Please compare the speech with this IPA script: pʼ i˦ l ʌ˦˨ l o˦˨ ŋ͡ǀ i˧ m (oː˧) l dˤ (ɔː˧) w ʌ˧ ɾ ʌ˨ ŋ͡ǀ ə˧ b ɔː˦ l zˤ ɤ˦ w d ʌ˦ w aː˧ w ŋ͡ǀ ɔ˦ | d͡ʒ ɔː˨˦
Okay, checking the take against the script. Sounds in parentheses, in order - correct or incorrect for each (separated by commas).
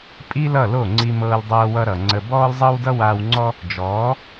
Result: incorrect, incorrect